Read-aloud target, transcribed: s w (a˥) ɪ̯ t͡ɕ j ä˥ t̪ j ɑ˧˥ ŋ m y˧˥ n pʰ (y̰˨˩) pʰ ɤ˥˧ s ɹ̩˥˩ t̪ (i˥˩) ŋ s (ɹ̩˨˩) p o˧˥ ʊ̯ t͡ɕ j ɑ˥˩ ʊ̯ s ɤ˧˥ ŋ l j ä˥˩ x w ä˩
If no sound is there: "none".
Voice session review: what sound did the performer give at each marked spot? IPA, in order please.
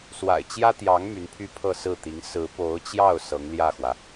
a̰˨˩, y˥, i˧˥, ɹ̩˧˥

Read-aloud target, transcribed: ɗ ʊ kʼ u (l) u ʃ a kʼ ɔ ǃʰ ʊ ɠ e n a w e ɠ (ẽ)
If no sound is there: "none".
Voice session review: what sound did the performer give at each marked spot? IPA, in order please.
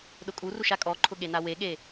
r, e

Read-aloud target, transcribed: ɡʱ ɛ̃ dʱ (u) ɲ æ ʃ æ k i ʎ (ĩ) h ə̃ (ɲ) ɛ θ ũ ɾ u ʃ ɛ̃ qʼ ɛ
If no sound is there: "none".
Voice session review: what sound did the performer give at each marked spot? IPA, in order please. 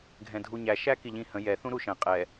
u, ĩ, j

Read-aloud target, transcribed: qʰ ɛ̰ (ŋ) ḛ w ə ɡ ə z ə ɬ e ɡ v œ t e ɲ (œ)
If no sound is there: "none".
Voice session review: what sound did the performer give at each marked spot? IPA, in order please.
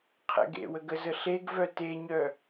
ɡ, œ

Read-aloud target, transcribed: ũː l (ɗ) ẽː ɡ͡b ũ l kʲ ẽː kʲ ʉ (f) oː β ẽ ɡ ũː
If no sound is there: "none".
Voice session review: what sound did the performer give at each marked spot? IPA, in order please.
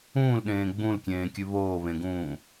ɗ, β

